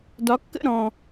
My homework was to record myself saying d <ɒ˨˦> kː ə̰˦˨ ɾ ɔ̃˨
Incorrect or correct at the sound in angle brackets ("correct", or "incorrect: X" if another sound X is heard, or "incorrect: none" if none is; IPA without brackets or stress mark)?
correct